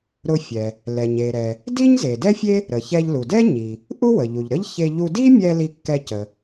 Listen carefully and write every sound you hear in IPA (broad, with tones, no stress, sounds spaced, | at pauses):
ɾ ʊ˧ fʲ ɛ˩ | l ɛ˩ ɲ e˩ ɾ ɛ˩ | d i˥ ɲ z e˩ d ɛ˥ fʲ e˥ | ɾ ə˩ ç ɛ˧ ʎ l u˩ d ɛ˥ ɲ i˩ | ʔ u˥ w ə˩ ʎ u˩ ʎ ɾ ə˥ ʎ ç e˧ ʎ u˧ d i˥ mʲ ɛ˧ l i˧ kː ɛ˧ c ə˩